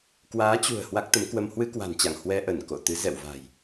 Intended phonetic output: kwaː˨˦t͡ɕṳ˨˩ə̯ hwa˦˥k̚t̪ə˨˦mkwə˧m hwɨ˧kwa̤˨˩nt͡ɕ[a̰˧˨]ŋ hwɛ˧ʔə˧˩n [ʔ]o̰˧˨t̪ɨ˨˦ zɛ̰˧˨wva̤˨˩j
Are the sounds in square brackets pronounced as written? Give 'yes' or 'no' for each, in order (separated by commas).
yes, no